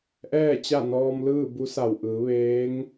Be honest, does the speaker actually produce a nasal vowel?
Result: no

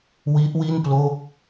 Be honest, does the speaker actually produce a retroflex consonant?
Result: no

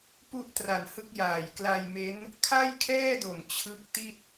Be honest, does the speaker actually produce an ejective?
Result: no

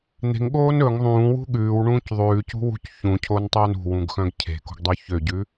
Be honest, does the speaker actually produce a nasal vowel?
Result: yes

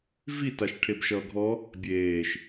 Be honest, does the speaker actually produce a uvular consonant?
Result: no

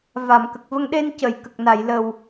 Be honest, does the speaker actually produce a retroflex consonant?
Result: no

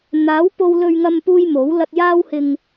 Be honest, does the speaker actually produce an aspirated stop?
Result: no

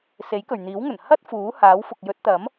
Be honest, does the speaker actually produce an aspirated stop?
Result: no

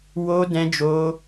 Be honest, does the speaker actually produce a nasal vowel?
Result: yes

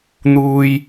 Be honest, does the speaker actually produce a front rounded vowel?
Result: no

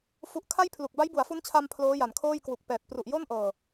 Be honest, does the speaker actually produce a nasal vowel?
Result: no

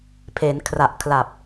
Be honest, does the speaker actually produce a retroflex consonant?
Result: no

